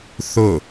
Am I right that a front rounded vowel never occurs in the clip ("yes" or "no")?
yes